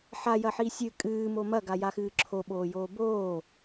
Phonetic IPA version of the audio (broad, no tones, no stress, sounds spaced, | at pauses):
ħ a j ɐ ħ i sʲ ɨ kʼ ɨː m o m ɐ ɡ a j a x ɨː ǁʰ o ɓ oː j oː b oː